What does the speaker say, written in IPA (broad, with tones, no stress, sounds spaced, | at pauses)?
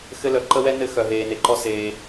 x ɘ˥ l œ˧ ǃ ə˥ w ɛ˥ n ɘ˥ x œ˧ ɦ eː˧ n e˧ ǃ ɔ˥ s eː˧